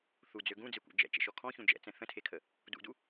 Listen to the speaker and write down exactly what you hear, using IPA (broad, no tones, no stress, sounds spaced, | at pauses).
θ u d͡z ø ɡ ũ d͡z e kʷ ɛ̰ d͡ʒ ɛ̰ t͡ʃ ɛ̰ ʃ ɔ kʰ ɔ̃ ç ũ d͡ʒ ɛ̰ t͡s ɛ̃ θ ə̃ tʰ e kʰ ə | d ṵ d u